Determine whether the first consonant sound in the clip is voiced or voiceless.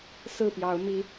voiceless